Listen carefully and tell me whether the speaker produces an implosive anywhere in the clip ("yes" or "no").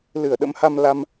yes